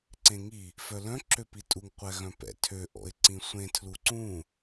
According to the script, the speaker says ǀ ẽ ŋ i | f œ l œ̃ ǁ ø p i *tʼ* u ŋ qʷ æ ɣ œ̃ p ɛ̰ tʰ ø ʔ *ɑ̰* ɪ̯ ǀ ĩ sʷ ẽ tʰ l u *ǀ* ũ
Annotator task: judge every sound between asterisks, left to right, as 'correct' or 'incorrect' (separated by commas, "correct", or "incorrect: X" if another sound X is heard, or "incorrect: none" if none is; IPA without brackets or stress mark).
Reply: correct, incorrect: ɔ̰, correct